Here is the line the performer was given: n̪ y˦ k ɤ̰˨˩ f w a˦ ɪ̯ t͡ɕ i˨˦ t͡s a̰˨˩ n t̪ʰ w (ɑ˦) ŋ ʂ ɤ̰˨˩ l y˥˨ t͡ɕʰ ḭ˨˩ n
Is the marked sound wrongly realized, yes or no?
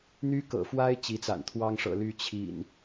no